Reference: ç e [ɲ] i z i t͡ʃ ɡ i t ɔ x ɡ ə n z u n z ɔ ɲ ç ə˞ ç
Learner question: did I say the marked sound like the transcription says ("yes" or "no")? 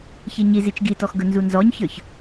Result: yes